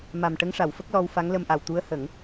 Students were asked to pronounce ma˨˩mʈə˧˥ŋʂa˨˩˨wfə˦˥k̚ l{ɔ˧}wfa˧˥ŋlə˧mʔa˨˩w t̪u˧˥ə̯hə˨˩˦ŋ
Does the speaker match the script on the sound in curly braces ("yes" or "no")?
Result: yes